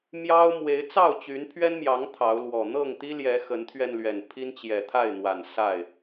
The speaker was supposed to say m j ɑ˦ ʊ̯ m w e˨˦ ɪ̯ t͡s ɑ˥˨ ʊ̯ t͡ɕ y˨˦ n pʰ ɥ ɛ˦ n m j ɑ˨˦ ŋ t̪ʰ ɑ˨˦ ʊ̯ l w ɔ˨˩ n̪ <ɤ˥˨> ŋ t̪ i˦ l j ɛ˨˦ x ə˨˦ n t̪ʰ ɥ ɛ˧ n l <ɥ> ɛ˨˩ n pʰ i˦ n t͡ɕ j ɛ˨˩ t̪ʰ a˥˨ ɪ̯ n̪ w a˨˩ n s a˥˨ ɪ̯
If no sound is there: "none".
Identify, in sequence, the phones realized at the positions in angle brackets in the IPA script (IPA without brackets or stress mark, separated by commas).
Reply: ɤ˥˨, ɥ